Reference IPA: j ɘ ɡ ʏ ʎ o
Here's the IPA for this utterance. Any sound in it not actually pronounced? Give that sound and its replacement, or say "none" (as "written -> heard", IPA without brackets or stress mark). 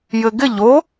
ʏ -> ɪ